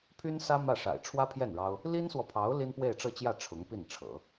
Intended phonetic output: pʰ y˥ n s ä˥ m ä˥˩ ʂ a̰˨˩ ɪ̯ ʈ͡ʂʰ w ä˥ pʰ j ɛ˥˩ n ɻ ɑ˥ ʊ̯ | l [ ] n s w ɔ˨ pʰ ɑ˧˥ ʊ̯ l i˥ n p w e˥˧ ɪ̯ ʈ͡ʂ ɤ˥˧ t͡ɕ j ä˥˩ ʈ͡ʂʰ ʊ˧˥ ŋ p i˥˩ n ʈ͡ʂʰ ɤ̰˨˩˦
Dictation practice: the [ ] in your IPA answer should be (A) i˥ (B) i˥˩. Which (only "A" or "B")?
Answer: A